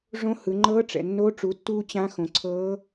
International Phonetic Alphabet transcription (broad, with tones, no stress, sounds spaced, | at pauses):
ʐ õ˧˥ h ɯ˩˧ ŋ͡ǃ ɤː˧˥ ʈ͡ʂ ɛ̰˩ nː o˧˥ ʈ͡ʂ u˩˧ tː uː˧ t͡ɕ ã˧˥ x õ˩ ǀʰ ɤː˧˥